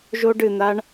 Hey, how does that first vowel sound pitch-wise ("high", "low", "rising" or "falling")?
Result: high